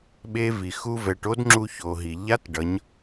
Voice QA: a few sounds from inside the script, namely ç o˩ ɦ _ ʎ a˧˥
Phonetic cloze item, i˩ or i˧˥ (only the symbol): i˩